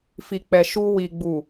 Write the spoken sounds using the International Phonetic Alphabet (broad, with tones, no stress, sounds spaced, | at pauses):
f i˨ k͡p ɛ˨ ʃ u˧ w i˨ ɡ͡b u˨